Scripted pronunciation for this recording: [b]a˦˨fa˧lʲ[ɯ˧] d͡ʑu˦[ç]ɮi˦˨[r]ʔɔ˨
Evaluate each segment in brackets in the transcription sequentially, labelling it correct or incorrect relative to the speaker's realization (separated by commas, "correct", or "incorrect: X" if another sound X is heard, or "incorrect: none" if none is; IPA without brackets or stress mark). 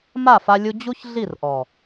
incorrect: m, incorrect: u˧, correct, correct